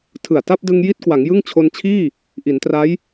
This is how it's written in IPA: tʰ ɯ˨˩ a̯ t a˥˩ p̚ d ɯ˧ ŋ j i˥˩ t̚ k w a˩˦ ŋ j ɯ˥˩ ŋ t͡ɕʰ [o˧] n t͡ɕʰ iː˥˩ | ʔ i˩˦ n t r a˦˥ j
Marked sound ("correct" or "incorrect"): correct